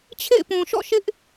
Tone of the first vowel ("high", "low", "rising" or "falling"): falling